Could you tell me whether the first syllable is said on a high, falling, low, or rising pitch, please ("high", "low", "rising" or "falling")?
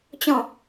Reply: falling